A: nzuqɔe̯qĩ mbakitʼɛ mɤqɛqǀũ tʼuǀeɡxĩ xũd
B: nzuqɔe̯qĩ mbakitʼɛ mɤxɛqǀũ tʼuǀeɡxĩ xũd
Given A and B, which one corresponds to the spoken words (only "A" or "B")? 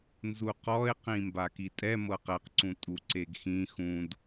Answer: A